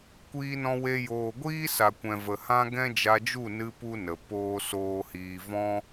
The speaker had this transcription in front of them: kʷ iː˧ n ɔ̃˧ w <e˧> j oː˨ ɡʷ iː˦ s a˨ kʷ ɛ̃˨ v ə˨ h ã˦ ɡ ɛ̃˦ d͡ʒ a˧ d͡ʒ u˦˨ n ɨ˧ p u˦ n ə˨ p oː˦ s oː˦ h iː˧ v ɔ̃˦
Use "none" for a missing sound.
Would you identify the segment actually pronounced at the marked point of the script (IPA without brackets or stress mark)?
e˧